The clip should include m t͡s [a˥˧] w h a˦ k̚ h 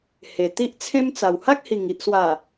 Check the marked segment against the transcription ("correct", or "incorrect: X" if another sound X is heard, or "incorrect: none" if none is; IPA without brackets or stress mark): incorrect: a˨˩